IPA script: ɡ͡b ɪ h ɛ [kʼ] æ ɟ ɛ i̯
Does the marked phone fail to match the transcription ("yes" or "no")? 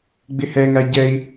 yes